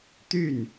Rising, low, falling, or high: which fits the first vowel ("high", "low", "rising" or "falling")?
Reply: falling